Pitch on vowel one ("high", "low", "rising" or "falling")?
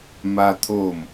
high